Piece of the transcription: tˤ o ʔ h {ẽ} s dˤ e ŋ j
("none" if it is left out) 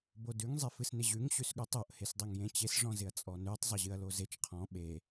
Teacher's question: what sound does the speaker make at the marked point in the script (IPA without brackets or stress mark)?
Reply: e